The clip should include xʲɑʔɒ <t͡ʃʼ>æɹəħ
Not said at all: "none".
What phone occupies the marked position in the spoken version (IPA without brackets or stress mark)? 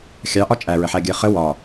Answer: t͡ʃʼ